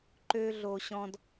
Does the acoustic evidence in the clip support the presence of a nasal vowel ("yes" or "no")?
yes